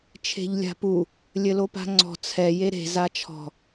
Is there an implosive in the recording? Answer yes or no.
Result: no